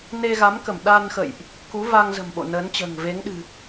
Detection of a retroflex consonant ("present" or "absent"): absent